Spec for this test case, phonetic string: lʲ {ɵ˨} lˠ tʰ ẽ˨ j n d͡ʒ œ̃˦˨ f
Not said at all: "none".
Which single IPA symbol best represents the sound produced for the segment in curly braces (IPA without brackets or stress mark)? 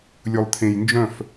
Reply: ɵ˨